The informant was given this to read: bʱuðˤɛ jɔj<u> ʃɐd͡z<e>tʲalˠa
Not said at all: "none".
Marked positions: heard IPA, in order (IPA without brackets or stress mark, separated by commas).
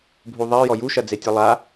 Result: u, e